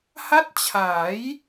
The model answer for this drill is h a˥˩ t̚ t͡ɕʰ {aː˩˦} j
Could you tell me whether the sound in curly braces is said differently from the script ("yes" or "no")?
no